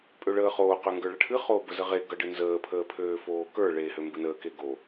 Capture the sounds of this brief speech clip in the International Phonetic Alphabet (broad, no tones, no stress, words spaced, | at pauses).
pʼøɭəːχoː qøŋɡə˞ɭʌʈʰɨ χoːbəzəʁe ɡʌɖɨnzəː pʰəːpʰøːfoːkə˞ ɭeːhømbɨnəː keɡo